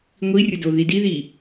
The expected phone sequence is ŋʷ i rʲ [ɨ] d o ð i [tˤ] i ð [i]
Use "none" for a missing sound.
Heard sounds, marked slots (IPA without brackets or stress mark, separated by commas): ə, d, i